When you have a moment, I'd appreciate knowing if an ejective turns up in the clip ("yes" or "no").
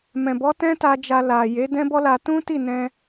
no